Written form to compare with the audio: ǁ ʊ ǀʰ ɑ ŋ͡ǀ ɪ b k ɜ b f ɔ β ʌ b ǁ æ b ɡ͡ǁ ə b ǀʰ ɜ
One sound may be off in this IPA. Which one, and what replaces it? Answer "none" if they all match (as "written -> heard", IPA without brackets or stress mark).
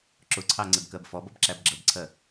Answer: β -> b